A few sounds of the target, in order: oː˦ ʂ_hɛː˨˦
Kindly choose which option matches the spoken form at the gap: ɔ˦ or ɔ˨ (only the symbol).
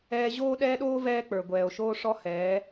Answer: ɔ˦